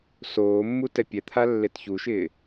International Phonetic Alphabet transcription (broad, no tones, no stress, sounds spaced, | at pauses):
s oː mː u t ɛ pʲ ɛ t̪ʰ a lː e t ç u ʃ ɪː